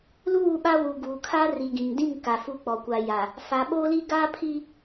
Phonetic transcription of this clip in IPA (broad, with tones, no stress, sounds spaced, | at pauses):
l uː˦˨ ɓ a˦ w u˨ ɡ uː˨ kʰ a˦ r i˨ ɡ ĩ˨ ŋ d ĩ˦˨ ŋ k a˨ f uː˦ k͡p ɔ˨ kʷ a˨ j a˨ | f a˨ ɓ oː˦ l i˦ ɡ aː˦ pʰ i˦